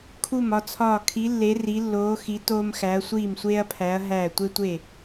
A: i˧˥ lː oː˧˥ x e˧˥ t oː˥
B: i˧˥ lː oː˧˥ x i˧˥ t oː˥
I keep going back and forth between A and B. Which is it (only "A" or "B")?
B